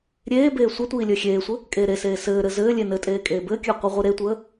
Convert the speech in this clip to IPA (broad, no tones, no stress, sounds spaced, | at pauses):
ɾʲ eː b eː sʷ ə tʷ iː lʲ əː xʲ eː sʷ ɘ | kʼ eː ɾ e s eː s ɘː ɾ ɘ z ɘː lʲ e n ɘ tʼ eː kʼ eː b ɘː kʲ əː qʷ i ʁʷ i ɾ e tʷ əː